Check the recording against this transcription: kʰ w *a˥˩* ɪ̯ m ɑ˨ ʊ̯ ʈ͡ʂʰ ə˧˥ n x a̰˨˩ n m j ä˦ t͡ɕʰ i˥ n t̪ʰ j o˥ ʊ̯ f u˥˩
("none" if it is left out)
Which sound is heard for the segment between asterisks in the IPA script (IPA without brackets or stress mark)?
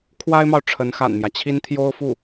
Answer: a˥